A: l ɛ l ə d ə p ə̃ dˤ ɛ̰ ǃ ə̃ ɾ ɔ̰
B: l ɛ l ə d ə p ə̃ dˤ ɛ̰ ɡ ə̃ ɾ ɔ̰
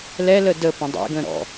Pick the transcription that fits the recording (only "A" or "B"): B